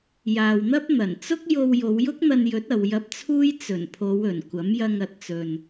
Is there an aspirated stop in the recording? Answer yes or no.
yes